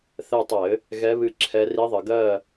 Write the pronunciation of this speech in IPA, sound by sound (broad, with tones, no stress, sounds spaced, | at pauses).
θ ɛ˦˨ tˤ ɘ˧˩˧ | ɣ ɛ˧˥ β ɨ˦˨ ǁʰ ɛ˧˥ r i˧˥ ðˤ ə˩˧ ɡ ɜ˦˨